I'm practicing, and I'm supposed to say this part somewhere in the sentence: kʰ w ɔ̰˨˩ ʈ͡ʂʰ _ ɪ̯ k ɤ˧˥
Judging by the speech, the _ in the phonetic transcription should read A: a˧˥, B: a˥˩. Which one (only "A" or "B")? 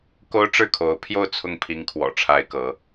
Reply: A